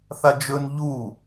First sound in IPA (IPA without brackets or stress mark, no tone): θ